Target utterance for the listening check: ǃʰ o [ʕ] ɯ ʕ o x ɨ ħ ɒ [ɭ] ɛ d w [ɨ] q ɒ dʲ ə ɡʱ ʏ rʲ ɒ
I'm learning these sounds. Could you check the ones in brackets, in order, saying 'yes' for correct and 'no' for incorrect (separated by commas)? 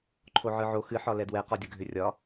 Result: yes, no, no